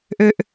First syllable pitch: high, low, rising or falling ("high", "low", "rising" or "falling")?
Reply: low